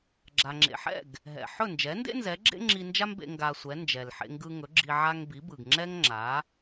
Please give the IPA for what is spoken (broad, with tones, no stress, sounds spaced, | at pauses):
ɡ͡ǁ a˩ ŋ͡ǁ ḛ˩ ħ ɛ̰˥˩ ɡ | ɦ ɛ̰˩ ħ ɵ˥˩ n d͡ʒ ɛ˩˥ n d ḛ˥ n z ɛ˩˥ ɡ͡ǁ ḛ˥ ŋ͡ǁ i˧ n d͡ʒ a˥ m b ḛ˧ ŋ ɡ a˧ sʷ ɛ˩˥ n d͡ʒ ɛ˩ l ħ ḛ˧ ŋ ɡ ɯ˧ ŋ ɵ˩˥ ɡ͡ǁ i˧ ʕ a˧ ŋ b i˩˥ b ɯ˩ ɡ ŋ͡ǁ ɛ˥ ŋ ŋ͡ǁ a˩˥